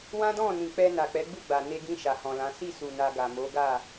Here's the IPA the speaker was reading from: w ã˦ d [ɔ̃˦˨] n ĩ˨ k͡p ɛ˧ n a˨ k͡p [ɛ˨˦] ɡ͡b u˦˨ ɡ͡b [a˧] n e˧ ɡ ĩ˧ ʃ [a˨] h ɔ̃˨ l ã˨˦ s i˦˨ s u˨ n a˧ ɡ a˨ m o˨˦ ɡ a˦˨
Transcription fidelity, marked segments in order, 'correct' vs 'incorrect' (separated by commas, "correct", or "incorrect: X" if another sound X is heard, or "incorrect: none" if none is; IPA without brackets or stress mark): correct, correct, incorrect: a˨, correct